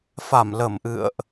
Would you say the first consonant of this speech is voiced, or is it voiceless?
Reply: voiceless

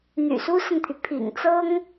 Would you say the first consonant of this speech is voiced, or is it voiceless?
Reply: voiced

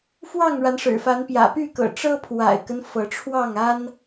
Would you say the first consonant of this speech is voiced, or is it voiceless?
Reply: voiceless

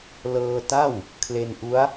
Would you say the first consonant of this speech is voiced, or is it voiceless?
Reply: voiced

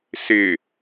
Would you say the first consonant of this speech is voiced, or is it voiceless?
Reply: voiceless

